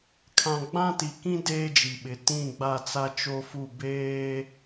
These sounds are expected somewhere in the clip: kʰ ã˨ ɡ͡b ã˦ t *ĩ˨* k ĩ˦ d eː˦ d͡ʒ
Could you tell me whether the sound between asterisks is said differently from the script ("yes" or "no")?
yes